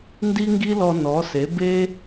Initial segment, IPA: n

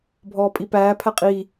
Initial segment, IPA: bʱ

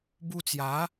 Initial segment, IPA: b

